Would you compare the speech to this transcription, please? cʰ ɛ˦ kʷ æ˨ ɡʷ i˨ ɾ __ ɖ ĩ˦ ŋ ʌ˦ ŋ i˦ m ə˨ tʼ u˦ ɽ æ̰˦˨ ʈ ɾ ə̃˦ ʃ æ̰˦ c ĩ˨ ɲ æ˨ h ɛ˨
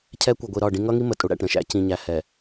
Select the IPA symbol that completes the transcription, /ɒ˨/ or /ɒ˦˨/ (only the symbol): ɒ˦˨